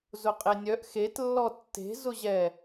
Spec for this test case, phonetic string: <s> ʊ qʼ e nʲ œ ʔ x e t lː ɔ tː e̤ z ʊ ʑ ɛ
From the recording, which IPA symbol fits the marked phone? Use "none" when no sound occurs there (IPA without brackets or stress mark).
z